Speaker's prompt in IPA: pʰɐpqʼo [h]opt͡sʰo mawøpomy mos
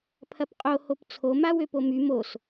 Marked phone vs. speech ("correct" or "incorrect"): correct